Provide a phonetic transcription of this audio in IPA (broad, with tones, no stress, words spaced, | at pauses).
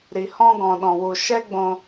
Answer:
ɾi˨hɔ̃˧ ɡɔ̃˨ɗɔ̃˨wu˨ ʃɛ˦ɡ͡bõ˧